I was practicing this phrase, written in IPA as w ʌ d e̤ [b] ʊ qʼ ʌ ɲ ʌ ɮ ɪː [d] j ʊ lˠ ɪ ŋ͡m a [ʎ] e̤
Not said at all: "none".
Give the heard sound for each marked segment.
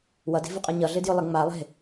v, d, lˠ

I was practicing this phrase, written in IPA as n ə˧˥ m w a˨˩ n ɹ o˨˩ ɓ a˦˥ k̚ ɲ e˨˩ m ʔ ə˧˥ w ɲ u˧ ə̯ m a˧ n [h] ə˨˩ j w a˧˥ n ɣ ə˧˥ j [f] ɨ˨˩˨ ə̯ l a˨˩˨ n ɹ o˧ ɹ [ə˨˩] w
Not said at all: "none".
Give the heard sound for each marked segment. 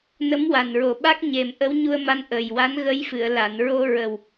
ʔ, f, ə˨˩

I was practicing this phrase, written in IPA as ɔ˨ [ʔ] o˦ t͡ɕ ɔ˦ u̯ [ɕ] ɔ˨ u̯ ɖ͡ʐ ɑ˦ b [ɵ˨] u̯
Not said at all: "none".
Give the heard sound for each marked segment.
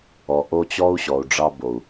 ʔ, ɕ, o˨

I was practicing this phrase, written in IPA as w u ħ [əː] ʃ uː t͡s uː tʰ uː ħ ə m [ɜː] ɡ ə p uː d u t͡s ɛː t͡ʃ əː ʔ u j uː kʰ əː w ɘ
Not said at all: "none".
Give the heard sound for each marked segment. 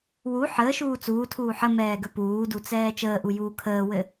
əː, ɛː

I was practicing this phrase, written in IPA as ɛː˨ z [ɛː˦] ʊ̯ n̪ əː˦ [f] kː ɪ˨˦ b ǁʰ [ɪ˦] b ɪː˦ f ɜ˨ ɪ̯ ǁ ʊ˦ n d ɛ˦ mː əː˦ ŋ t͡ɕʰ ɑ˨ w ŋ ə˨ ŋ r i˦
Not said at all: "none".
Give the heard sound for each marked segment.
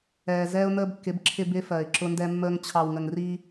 ɛː˦, b, ɪ˦

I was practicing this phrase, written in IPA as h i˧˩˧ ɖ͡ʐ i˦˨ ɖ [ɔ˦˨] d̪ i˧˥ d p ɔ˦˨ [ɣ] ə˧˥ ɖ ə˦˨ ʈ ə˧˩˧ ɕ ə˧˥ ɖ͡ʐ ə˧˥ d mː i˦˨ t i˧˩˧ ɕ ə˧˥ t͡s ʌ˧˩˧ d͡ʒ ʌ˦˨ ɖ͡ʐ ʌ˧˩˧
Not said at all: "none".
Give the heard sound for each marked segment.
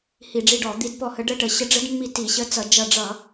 ɔ˧˩˧, h

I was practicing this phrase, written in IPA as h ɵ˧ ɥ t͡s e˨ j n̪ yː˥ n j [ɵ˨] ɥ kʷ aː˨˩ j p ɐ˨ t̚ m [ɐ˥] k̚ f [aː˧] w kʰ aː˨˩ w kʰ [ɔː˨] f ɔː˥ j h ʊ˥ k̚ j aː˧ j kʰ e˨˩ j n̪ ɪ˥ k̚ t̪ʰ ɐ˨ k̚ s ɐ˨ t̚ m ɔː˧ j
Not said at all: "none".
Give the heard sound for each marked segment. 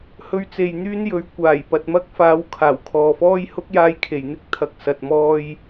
ɵ˨˥, ɐ˥, aː˨˥, ɔː˨

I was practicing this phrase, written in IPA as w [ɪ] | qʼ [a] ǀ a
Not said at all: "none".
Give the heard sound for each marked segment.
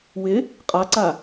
ɪ, a

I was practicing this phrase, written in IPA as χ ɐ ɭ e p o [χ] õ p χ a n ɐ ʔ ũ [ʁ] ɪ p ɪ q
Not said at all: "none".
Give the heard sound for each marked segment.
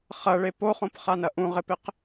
χ, ʁ

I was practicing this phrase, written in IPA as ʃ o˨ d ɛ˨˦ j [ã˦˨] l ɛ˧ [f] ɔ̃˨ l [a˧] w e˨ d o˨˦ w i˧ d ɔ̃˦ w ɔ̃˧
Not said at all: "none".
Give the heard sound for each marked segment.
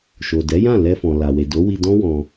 ã˦˨, f, a˨

